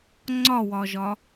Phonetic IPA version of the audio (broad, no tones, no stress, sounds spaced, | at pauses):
ŋ͡ǀ ɒ w ɒ ʒ ɒ